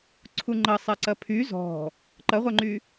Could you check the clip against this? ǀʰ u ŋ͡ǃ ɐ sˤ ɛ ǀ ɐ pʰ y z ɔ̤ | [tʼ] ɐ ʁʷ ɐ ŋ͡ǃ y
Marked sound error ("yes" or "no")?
yes